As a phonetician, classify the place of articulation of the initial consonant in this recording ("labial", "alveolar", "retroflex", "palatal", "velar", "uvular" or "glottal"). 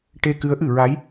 retroflex